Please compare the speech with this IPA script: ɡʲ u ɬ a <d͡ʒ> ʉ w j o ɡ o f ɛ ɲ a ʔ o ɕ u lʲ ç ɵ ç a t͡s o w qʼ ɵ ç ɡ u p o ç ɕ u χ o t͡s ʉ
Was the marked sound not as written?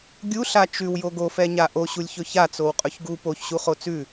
yes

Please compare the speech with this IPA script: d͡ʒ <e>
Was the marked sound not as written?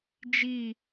yes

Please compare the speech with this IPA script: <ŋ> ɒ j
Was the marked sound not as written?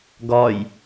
yes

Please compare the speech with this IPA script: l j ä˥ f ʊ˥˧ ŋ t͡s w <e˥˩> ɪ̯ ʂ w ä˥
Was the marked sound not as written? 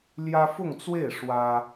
no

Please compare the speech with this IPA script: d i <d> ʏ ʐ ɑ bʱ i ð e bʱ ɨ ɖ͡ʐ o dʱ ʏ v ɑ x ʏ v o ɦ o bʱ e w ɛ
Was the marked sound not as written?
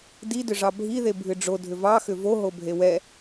no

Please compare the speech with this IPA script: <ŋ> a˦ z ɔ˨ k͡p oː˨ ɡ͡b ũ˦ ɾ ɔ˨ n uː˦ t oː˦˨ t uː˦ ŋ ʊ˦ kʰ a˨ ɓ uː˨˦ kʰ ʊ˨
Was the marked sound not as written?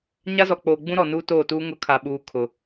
yes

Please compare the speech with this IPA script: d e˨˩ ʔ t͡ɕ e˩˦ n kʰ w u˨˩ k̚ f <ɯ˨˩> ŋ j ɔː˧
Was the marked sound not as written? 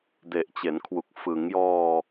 yes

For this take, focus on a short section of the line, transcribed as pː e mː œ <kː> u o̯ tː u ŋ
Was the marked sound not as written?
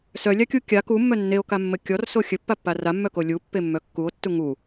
no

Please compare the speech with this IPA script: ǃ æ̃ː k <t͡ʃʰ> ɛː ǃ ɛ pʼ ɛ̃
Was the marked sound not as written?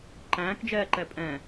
yes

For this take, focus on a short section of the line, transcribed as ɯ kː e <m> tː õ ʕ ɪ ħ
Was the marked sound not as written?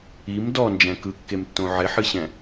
no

